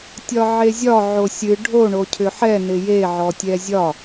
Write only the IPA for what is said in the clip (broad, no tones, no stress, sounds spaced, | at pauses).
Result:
tʲ ɒ ʕ e zʲ ɒ ʕ o sʲ ɨ ɖʱ o ɳ o cʰ ʏ ħ ɛ n ɪ j e ʕ ɔ tʲ ɛ zʲ ɒ